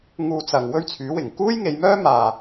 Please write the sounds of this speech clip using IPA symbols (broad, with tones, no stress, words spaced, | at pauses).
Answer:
ŋuː˧t͡sɐ˨ŋ wɵ˥ɥt͡sʰyː˨˥wɪ˨˩ŋ kuː˥jŋe˨˧jmœː˥ maː˧